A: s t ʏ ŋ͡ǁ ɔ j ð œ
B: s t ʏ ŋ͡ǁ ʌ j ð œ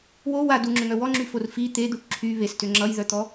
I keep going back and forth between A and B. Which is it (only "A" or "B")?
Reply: B